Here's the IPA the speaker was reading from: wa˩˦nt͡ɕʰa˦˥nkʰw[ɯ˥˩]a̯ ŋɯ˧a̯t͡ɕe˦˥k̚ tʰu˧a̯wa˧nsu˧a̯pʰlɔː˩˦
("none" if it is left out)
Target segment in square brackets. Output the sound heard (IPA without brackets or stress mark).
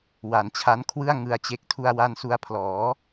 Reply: ɯ˥˩